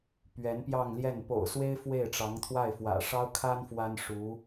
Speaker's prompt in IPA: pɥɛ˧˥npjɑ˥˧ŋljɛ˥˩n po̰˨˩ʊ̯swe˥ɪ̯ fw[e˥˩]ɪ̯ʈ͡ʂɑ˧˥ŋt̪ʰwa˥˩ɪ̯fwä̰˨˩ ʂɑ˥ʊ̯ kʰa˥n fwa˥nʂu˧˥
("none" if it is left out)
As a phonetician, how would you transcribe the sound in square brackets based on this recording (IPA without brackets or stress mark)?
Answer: e˥˩